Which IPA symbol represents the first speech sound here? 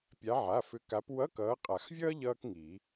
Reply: pʲ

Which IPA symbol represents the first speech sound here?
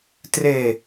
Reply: t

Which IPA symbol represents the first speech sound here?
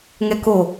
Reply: ŋ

